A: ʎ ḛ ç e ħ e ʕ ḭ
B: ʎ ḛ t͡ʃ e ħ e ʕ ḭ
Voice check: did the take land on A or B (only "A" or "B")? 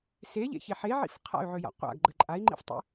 A